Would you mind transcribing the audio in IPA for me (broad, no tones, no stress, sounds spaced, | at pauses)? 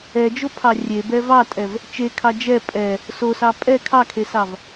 ɛ d͡ʒ o pʰ ɑ rʲ e b ɛ v ɑ tʼ ɛ v | t͡ʃ e kʰ ɑ d͡ʒ ɛ pʼ ɛ | s o s ɑ pʼ ɛ kʰ ɑ kʰ e s ɑ v